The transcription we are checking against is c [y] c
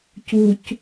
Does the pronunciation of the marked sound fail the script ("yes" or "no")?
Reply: yes